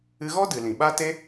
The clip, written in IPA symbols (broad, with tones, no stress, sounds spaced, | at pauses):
ɨ˧ ɣ ɔ˦ d ɨ˨ l ĩ˨ ɓ a˦ t e˦